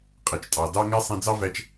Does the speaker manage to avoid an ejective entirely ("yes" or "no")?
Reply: no